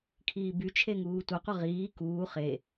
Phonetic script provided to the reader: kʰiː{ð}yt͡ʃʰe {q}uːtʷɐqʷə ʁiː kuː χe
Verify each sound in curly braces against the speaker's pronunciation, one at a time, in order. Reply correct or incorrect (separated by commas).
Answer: incorrect, incorrect